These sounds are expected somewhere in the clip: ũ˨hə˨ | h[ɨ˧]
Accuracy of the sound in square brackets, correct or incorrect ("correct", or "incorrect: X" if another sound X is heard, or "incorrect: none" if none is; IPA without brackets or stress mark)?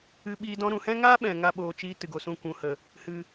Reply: correct